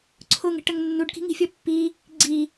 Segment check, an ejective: absent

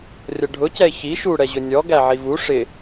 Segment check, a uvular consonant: absent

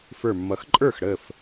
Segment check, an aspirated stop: absent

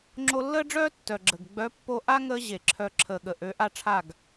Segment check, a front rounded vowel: present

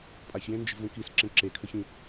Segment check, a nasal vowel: present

